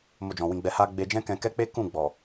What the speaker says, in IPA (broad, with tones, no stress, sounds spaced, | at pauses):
m o˧ d͡ʒ ɔ̃˨ w ĩ˧ ɡ͡b ɛ˧ h a˧ ɡ͡b e˧ d͡ʒ ɛ̃˦ k ɛ̃˧ k ɛ˦ k͡p e˦ k ũ˦˨ ɡ͡b ɔ˨